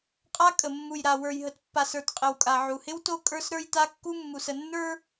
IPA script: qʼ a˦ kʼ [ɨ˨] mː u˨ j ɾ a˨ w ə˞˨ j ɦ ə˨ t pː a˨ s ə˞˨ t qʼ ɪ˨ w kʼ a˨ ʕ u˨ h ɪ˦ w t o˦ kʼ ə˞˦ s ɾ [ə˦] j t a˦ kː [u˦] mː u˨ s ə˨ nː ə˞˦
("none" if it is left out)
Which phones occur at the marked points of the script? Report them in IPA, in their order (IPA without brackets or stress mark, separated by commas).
ə˨, ə˞˦, u˦